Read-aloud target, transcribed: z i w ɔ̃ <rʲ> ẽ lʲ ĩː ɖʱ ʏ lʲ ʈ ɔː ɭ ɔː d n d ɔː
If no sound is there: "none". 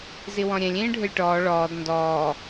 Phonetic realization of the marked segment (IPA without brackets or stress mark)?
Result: ɾʲ